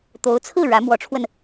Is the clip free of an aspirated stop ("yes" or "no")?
no